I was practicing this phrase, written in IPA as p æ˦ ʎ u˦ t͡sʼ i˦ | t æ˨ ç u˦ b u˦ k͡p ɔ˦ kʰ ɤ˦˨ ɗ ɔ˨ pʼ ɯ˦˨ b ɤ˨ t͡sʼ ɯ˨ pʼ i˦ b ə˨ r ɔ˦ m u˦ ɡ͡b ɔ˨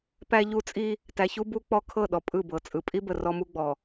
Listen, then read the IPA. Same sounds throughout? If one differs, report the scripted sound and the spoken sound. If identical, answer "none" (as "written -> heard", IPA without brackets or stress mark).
none